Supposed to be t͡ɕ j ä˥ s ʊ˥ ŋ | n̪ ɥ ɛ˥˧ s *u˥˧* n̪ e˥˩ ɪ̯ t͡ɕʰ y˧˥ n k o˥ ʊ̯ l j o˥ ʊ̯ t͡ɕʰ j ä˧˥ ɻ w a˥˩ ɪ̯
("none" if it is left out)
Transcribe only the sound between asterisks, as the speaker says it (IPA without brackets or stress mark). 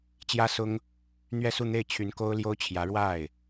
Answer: u˥˧